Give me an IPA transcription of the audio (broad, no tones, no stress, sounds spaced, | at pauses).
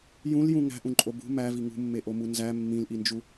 j ũ l j ũ ŋ æ̤ ʔ ũ ǃʼ o b ṳ m æ v i ŋ ṳ mː e ʔ o m u n z æ mː ĩ l ʔ i n d͡ʒ u